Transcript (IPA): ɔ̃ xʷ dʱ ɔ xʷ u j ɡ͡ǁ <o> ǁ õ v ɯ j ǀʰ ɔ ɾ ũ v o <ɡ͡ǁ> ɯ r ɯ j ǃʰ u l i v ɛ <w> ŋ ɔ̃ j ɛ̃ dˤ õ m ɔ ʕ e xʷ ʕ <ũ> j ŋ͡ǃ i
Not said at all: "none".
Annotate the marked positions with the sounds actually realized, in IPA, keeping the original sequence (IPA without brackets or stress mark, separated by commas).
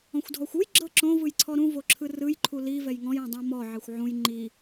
ɤ, ǁʰ, j, ũ